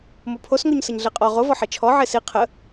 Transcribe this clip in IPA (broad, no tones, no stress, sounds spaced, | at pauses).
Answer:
m o pʰ o s ŋ o ɲ s ə ɲ ɮ e qʼ ɔ ʁ o v ɔ ħ e t͡ʃʰ ɔ ʕ e s i qʰ ə